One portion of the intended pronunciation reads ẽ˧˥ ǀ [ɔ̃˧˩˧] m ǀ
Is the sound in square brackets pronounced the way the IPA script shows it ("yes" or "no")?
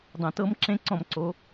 yes